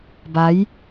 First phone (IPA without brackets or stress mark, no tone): b